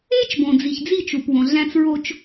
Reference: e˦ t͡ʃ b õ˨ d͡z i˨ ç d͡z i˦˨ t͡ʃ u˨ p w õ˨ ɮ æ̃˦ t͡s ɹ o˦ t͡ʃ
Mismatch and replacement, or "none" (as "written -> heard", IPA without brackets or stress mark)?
none